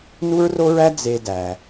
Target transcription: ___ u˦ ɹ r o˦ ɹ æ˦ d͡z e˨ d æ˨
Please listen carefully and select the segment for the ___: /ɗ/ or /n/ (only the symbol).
n